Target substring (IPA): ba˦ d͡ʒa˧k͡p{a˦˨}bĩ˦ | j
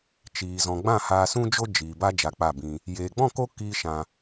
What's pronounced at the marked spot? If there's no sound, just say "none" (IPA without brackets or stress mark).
a˦˨